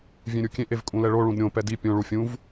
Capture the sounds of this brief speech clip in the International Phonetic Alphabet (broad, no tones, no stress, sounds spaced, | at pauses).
vʲ ẽ ɾʲ u kʲ ẽ ʔ e v kʼ ũ l ɛ ɭ o ɭ ũ d ɾʲ õ p ɛ d i pʲ õ ɭ u fʲ ũ v